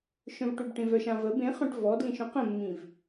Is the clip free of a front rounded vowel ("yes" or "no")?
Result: no